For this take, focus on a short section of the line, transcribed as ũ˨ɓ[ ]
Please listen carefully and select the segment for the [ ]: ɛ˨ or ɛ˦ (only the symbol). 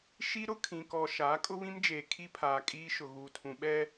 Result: ɛ˦